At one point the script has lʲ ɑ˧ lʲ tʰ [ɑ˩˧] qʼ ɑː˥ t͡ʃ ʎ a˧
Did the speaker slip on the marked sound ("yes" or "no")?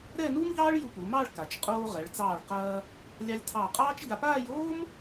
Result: yes